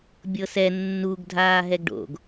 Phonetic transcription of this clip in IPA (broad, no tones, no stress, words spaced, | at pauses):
bʲɤsɛ nːuɡ dʱaːɦɛɡɖo̰ɡ